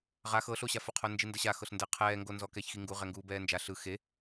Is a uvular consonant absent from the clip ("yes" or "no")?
no